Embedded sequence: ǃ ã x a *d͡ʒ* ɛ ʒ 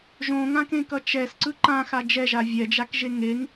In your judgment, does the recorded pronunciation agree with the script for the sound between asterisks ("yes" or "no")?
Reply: yes